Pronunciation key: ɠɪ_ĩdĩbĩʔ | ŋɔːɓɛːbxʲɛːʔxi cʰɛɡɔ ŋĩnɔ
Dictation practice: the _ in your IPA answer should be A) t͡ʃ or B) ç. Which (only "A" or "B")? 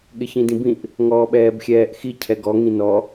B